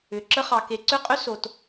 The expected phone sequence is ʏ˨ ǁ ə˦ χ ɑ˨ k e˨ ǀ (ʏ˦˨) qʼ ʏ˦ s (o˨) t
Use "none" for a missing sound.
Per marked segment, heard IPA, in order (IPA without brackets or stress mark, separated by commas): ʏ˦˨, o˨